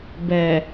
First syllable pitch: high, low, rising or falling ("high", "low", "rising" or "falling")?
low